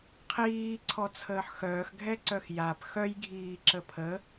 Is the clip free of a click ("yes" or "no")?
no